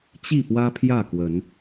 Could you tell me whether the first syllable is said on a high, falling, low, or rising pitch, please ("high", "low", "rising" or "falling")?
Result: falling